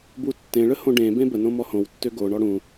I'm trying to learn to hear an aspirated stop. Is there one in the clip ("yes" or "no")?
no